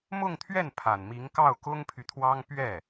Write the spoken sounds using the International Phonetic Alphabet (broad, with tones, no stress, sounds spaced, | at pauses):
m ʊ˥˧ ŋ t̪ʰ ɥ ɛ˥˩ n pʰ a˨˩ n m i˧˥ ŋ k ɑ˥˩ ʊ̯ k ʊ˥ ŋ pʰ y˨ t̪ʰ w ɑ˥ ŋ p ɥ ɛ˥˩